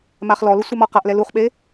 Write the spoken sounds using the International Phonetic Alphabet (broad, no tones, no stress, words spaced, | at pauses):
maχlɔlʊ sʷɛmɔqaʔlɛ luχɓe